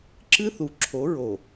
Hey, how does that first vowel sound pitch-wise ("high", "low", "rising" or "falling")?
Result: high